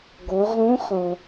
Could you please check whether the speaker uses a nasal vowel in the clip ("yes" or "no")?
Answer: yes